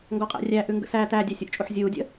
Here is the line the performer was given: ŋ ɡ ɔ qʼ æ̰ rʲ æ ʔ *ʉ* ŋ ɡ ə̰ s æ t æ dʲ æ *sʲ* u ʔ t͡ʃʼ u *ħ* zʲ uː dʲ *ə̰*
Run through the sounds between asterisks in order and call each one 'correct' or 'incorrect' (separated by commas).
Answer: correct, correct, correct, correct